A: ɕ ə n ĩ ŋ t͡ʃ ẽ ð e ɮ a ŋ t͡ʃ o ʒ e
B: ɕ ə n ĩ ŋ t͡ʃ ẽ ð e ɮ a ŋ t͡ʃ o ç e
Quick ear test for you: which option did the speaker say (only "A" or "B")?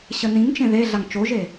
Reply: A